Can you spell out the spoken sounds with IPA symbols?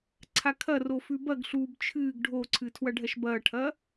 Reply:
ǀʰakʰɐro fʉbɐɡɬuːb t͡ʃʰɨːɡ ɖʱoǀʰɨ tʰwɐɖʱɐʃbɐːʈʰɐː

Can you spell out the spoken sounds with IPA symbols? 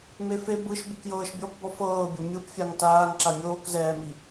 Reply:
mefe bɯʃ bukjɤːʃbʲɔpbɔ fɤːbʲo mʲɯpfʲaŋ taːŋǁa mʲoːkzɛːmi

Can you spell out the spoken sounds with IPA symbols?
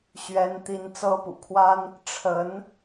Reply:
ɕɥɛ˥nt̪i˥n t͡sɤ˥pṵ˨˩kʰwa˥n | ʈ͡ʂʰə˧˥n

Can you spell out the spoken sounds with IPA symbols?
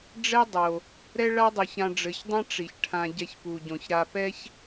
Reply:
ɖ͡ʐɛ˥dˤo˩ | ɾɛ˥ɭa˥dˤo˨ç ã˨ɖ͡ʐɘ˩çdˤã˥ ʈ͡ʂi˩çʈʰã˨ ɟɛ˨çpu˩ɟõ˩ç ɾa˨pɛ˦ç

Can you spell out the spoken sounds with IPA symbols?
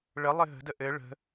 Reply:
ɭəlˠɘ ɦə̤də ʔɘ ɭə̤

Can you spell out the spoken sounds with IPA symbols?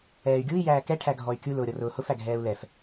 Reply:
ɛːy̯ɡʲui̯ jæːkɛ ʈʰæɡʱɔy̯kʲu lʊːɾʲɔrʊːhʊf æɡʱɛːu̯lɛf

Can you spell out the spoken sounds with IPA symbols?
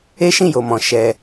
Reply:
e˦ʃĩ˦˨jo˨mɔ̃˨ ʃɛ˧

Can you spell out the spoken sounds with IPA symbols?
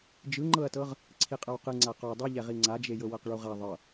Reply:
d͡ʒɯŋ͡ǃɤɐ̯tɤʁ | ǀʰiqʼɤwqɯ ŋ͡ǀaqɔ dˤɯ ʎɛʁiŋ͡ǀad͡ʒe jɤwɤqɭuʁa ðˤɤ

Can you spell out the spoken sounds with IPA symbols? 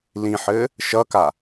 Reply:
lĩħɘ | ʃʌka

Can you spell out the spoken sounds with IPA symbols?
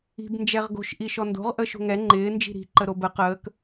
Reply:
i̤b nd͡ʒɛʁɡo̤ʃ ʔiʃɔndo̤ʁ ʔəːʃo̤ŋɛ ŋ͡ǃɪː nd͡ʒi̤ɾi̤ ǃəɾobə qəːk

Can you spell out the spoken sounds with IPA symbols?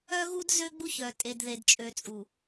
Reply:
œ˦ɣu˦d zø˦ɡ͡bu˦çœ˨ tʼe˨dðe˨dt͡ʃʼø˨t͡sʼu˨

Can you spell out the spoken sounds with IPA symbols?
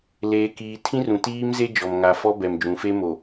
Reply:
leː˨kiː˨ tʰĩ˦rũ˨tiː˦m ze˦d͡ʒɔ˨m ŋa˨fɔ˦bɛ˨m d͡ʒũ˨fe˦ mo˨

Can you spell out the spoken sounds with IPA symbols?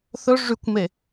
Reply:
θɵ ʐykʷme

